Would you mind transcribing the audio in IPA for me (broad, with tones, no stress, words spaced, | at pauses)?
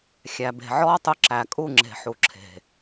xʲæ˨be̤˨ʕɔː˦tˤʊ˧ ǁæ˨kʼu˦˨ŋ͡ǁe̤˨ ħu˨ ǁʰe̤˨